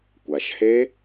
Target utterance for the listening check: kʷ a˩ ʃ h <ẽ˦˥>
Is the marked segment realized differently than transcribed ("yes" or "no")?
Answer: yes